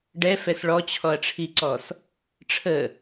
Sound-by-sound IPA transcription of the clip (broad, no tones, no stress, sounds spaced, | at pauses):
ɖ ɛ f ɛ s ɭ ɔ t͡ɕʰ ɔ ɐ̯ ʈ͡ʂʰ i ǀ ɔ s | ʈ͡ʂʰ ə